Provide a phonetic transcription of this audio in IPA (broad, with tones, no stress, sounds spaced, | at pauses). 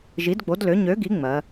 ʒ i˩˥ d ɡ͡b o˩˥ d l ø˩˥ ɲ ø˩˥ ɡ i˩˥ ŋ͡m ɜ˩˧